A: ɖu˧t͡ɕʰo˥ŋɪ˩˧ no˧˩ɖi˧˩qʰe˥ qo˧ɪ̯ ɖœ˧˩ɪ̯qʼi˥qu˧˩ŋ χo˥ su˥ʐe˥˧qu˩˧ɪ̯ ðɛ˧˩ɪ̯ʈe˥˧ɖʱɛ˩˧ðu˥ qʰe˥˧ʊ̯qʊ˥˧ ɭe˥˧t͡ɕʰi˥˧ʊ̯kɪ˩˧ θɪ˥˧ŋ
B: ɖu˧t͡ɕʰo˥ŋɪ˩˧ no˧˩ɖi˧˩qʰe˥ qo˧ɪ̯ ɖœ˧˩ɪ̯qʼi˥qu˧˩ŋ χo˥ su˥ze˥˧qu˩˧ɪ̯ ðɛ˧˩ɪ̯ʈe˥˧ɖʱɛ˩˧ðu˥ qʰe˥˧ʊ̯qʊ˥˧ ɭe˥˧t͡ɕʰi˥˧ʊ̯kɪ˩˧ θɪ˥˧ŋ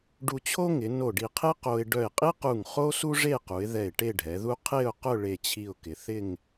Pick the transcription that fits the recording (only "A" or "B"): A